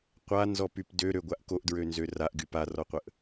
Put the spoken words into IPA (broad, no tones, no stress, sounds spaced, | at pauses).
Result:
qʷ a n z ɔ p y p d ø ɾ ø ɡʷ a ʔ k o ʔ d ɹ ø n z ø r a ʔ ɡ y p a r ɔ qʷ ə ʔ